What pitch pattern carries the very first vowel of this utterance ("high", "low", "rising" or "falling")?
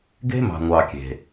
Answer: high